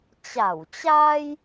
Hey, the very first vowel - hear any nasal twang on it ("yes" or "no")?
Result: no